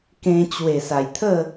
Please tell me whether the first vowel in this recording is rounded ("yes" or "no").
no